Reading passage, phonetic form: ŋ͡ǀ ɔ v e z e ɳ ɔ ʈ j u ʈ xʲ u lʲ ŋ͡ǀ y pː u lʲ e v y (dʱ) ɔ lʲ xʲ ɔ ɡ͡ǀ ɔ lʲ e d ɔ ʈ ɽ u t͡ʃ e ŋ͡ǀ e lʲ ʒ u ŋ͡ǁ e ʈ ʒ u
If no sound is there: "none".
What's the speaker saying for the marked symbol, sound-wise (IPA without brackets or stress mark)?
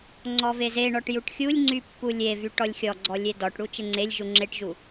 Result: ʈ